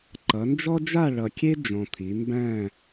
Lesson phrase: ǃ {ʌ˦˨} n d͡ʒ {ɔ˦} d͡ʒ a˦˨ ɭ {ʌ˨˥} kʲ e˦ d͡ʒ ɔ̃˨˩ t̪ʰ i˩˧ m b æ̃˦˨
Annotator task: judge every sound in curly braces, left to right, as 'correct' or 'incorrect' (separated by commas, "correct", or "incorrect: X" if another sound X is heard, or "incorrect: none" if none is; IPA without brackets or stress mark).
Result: incorrect: ʌ˩˧, correct, incorrect: ʌ˨˩